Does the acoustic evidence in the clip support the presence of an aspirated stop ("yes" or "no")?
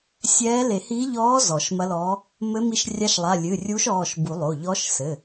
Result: no